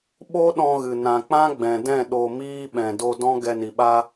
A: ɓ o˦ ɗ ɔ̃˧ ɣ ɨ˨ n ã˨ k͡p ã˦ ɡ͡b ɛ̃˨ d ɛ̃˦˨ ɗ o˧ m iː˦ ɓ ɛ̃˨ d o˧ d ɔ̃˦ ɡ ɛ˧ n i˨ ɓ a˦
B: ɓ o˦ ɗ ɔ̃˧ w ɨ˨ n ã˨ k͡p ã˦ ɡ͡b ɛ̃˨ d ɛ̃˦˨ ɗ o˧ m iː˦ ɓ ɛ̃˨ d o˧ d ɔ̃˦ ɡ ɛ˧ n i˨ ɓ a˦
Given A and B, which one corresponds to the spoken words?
A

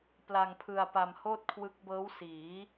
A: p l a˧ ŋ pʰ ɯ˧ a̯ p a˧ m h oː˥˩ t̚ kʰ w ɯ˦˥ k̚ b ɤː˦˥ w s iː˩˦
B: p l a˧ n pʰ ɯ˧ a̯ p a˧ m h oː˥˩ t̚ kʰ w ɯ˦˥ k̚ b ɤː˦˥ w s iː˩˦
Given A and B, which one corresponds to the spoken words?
A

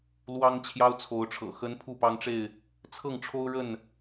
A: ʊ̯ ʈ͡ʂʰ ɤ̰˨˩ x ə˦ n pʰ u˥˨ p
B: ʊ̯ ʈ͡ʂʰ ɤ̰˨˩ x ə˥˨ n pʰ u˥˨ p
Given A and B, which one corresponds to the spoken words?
A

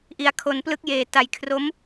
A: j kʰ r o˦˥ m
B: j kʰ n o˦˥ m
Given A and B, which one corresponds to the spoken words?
A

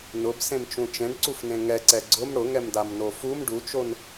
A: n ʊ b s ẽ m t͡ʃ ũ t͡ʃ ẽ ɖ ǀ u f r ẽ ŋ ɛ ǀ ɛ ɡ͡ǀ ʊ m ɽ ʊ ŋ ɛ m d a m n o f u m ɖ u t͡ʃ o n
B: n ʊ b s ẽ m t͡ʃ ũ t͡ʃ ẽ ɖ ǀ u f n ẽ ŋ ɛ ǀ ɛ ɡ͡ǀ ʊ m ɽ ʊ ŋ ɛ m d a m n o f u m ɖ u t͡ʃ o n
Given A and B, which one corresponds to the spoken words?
B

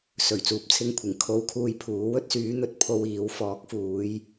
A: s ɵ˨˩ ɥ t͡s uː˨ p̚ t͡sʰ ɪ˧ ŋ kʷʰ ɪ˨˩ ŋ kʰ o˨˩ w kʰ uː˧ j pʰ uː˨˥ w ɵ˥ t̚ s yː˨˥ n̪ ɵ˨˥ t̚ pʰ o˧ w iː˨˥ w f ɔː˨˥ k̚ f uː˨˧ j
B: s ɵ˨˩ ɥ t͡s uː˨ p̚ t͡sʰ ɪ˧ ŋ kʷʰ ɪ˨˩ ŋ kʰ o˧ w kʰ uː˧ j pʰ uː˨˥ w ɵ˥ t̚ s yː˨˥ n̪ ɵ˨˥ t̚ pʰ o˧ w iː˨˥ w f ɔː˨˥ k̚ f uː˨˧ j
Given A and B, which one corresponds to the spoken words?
B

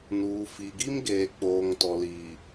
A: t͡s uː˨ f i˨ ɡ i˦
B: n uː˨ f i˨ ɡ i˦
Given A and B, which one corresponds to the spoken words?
B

